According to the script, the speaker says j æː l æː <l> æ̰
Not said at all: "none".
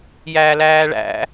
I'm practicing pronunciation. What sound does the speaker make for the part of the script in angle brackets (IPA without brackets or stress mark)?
ɭ